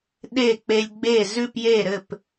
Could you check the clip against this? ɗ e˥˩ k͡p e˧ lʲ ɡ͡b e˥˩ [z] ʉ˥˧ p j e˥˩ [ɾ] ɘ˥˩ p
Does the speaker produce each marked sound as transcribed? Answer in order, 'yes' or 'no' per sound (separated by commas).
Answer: yes, yes